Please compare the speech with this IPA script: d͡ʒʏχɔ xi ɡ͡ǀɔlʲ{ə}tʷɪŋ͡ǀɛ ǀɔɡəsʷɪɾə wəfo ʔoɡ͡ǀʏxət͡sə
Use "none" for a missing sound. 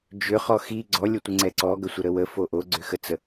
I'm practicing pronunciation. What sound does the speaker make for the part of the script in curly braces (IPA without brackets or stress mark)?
ə